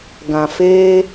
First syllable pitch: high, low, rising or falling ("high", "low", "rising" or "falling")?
low